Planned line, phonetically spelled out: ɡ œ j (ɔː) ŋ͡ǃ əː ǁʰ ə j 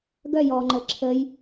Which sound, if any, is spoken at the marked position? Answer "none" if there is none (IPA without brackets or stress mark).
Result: ɔː